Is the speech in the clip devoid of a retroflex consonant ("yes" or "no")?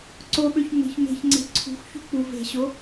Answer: yes